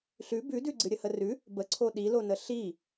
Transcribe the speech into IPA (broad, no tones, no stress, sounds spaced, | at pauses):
ɬ ʉ b ʉ d ʉ ɡ͡ǀ ɨ ɾʲ ə h ə r ʉ | b ə ǀʰ o ɗ i l o n ə ɬ i